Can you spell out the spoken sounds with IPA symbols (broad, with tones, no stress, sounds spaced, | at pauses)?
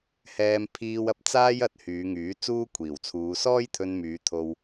h ɛː˧ m pʰ iː˧ w ɐ˨˥ p̚ t͡s aː˥ j ɐ˨˥ t̚ h yː˨˧ ŋ yː˨˥ t͡s uː˥ kʷʰ iː˨˩ w t͡sʰ uː˨˧ s ɔː˥ j t̪ʰ ɵ˧ n m yː˨˧ t̪ʰ o˧ w